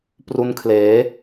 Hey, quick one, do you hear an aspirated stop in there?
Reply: yes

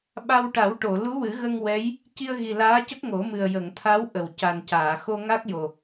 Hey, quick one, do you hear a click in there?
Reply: no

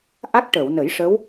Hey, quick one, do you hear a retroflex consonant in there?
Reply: yes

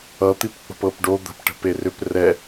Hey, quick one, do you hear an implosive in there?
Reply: no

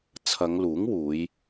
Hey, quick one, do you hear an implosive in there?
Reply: no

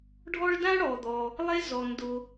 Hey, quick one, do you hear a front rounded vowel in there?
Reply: no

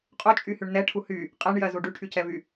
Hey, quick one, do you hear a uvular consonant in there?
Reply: yes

